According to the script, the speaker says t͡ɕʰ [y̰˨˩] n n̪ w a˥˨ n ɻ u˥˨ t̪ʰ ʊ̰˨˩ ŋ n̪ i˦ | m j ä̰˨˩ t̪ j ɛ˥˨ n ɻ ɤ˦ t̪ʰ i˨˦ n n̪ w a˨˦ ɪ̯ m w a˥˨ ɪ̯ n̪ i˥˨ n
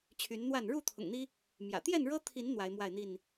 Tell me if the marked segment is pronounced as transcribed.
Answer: no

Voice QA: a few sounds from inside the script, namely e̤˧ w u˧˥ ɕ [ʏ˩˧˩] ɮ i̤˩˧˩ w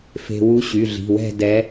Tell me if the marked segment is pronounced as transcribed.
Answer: no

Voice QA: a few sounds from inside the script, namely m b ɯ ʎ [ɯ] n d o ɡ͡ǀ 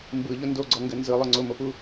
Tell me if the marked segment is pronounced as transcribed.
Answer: no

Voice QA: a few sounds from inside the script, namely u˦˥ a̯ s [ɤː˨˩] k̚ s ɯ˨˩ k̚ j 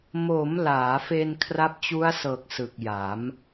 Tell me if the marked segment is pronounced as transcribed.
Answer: yes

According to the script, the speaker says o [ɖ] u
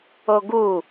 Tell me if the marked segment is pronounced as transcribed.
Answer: no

